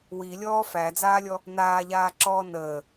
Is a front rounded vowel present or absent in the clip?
absent